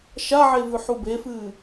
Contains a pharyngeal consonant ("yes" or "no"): yes